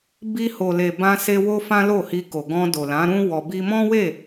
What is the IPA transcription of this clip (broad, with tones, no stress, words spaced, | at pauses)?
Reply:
bi˧ho˨ le˨bã˧se˧ wo˦fã˦lo˦˨ hi˧ko˨ ɡɔ̃˧ do˨lã˨˦ɾũ˦ wɔ˧ bi˧mɔ̃˦we˦˨